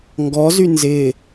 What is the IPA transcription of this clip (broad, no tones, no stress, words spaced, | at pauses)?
ŋɡɔzy nzɪ